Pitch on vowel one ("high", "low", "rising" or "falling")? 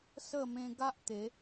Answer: falling